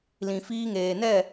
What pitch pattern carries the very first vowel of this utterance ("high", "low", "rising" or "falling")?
low